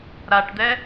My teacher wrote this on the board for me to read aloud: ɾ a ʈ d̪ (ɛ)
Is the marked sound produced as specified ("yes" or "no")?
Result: yes